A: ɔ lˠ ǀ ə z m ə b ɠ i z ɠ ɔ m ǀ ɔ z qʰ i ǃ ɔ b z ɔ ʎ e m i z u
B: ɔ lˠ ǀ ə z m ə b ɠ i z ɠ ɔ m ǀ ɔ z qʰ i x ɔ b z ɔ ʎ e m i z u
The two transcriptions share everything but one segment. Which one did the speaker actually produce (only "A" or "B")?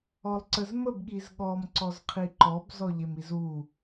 A